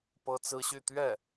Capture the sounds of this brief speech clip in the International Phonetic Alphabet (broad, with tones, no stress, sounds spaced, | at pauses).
p ɤ˥ t͡s ɹ̩˥ ɕ y˥˧ t̪ ɥ ɛ˥˩